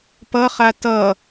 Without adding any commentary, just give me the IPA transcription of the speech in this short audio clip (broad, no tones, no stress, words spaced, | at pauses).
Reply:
pʌχa tʌ